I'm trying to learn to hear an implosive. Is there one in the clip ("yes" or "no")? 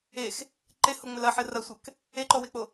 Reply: no